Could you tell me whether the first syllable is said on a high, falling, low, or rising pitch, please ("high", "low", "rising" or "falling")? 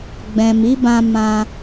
low